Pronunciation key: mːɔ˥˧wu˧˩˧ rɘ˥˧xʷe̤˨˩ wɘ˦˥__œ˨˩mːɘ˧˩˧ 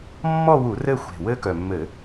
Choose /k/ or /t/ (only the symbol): k